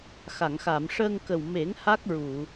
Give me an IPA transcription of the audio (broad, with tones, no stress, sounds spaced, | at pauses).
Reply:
x a˨˩˨ ŋ x a˨˩˨ m ʂ əː˧ ŋ k ə˨˩ w m e˨˩˦ ŋ h a˦˥ k̚ ɹ u˨˩˨